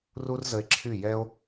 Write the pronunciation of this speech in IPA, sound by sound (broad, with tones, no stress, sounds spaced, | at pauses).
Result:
r u˦ r z ə˧ e̯ ǁʰ y˦˨ j ɛ˦ o̯